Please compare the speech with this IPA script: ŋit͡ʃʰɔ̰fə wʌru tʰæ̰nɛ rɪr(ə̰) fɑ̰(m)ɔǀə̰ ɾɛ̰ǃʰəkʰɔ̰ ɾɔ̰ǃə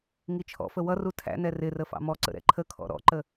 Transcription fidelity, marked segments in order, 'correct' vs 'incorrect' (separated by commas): incorrect, correct